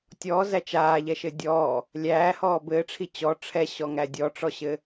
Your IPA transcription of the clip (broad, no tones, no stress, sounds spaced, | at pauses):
tʲ ɔː z æ t͡ʃ aː ʎ ɛ ʃ ɘ dʲ ɔː | lʲ æː h ɔː b ɘː ʈ͡ʂʰ i t͡ɕ ɔ ʈ͡ʂʰ ɛ ɕ ɔ ŋ æ dʲ ɔ ʈ͡ʂ ɔ ɕ ɘ